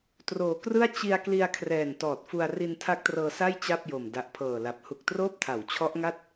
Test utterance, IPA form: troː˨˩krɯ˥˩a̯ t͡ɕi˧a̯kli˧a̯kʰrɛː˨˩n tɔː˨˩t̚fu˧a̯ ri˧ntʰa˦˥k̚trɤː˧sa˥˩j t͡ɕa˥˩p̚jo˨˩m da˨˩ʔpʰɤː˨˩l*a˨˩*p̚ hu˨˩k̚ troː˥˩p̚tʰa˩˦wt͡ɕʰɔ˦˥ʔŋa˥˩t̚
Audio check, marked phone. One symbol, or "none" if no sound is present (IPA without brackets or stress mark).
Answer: a˨˩